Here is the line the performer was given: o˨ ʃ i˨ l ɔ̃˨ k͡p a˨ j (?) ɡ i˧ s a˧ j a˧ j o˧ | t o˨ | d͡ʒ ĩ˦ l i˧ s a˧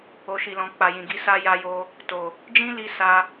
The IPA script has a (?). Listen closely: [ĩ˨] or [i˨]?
ĩ˨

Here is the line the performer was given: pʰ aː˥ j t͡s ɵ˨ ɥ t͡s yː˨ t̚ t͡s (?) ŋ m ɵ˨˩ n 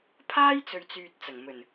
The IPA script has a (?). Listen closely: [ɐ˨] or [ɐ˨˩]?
ɐ˨˩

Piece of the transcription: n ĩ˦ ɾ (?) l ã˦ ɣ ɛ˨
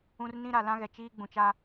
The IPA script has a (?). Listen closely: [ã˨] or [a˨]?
a˨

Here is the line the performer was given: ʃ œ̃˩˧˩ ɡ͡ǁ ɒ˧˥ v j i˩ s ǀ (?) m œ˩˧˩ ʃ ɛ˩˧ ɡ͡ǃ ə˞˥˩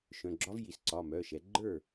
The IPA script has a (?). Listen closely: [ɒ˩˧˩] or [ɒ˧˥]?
ɒ˩˧˩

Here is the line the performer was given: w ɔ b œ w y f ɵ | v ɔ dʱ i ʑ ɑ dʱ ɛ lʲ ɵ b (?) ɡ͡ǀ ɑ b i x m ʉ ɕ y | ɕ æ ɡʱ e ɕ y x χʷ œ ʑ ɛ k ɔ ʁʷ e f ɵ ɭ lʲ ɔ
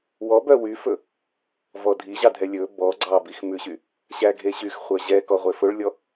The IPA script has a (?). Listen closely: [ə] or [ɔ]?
ɔ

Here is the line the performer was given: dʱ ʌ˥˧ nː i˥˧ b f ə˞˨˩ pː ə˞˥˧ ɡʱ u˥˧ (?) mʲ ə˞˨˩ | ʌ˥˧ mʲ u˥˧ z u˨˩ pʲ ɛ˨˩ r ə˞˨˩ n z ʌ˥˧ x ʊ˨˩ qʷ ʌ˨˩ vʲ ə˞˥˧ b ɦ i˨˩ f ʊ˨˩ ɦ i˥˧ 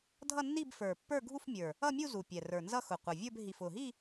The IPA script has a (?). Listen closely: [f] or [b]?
f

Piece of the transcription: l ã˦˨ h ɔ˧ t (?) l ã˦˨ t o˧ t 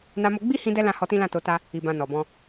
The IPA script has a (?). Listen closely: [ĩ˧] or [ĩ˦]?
ĩ˦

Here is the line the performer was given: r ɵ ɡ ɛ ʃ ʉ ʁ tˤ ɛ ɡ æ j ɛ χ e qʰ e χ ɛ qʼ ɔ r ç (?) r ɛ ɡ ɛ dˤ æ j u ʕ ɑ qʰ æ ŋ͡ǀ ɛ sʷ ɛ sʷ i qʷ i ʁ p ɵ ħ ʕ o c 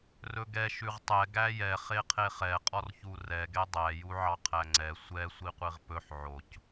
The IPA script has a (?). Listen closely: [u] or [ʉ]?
u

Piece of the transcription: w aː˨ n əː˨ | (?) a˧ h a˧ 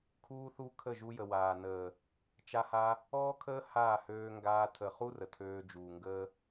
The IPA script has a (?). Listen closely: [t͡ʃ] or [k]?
t͡ʃ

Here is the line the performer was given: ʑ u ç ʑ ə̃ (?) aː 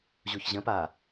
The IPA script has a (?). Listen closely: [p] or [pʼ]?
p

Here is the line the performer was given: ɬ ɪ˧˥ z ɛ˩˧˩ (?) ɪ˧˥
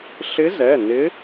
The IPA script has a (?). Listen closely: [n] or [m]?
n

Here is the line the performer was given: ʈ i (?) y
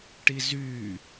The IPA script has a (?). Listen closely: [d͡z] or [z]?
z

